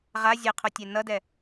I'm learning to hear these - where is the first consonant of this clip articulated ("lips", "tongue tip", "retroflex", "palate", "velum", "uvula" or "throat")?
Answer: uvula